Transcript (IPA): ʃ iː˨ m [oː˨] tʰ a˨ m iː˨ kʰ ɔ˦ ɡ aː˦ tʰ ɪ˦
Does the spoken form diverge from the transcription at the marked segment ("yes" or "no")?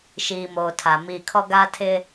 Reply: no